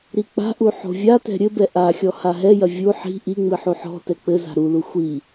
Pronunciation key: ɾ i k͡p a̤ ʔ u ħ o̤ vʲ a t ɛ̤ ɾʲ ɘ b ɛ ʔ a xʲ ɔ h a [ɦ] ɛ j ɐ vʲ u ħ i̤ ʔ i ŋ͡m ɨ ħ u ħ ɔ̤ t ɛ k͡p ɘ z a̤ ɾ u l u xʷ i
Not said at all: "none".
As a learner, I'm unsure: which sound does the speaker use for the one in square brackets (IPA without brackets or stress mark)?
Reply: ɦ